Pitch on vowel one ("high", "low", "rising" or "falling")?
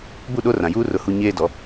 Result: falling